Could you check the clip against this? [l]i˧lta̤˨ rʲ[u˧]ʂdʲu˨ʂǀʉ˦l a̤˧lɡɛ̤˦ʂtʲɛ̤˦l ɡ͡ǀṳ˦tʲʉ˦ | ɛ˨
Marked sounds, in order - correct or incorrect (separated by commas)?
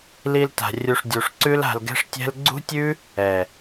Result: correct, correct